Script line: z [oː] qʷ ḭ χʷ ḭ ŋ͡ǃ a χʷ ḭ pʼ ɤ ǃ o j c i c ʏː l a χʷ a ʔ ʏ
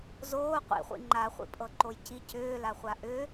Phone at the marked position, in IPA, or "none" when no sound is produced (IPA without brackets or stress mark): oː